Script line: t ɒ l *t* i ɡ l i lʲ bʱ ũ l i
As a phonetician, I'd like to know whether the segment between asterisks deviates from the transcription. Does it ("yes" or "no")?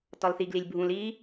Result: yes